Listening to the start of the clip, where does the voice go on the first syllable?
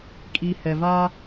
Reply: low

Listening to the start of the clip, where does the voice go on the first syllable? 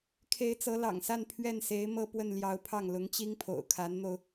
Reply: rising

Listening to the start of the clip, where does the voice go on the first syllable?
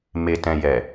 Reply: low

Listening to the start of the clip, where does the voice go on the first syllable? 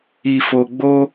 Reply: low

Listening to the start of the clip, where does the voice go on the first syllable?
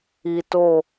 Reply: low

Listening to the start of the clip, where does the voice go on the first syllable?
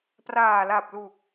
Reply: low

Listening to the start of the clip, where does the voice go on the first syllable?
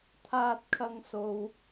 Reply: high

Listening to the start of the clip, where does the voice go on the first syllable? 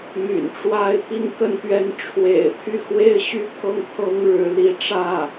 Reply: low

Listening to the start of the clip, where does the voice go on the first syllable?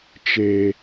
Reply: low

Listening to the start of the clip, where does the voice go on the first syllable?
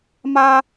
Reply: high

